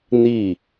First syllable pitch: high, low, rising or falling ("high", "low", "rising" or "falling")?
falling